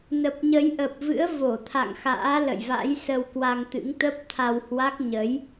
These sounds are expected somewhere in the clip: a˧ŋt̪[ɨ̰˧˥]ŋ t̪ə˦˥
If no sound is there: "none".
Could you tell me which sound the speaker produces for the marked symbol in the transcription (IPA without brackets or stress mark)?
ɨ̰˧˥